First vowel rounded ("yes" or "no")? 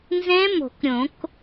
no